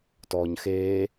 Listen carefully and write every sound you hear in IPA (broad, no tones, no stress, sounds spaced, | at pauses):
t ɔː ɲ x eː